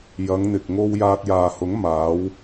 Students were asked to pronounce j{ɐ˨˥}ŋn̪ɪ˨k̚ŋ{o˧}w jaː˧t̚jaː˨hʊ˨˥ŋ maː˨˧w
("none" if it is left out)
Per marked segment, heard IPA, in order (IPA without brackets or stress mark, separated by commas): ɐ˨˧, o˧